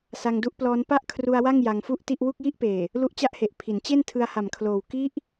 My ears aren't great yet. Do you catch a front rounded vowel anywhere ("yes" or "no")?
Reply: no